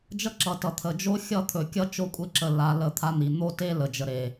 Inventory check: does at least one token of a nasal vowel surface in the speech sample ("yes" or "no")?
no